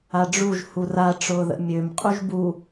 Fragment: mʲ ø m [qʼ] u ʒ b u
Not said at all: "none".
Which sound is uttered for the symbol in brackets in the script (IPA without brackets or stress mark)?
qʼ